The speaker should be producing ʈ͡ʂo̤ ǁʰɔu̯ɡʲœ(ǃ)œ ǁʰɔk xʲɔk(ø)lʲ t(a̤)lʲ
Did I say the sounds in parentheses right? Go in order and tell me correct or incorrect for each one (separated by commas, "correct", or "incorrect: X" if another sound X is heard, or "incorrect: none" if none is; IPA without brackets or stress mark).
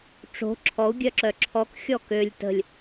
incorrect: ǁ, correct, incorrect: ə̤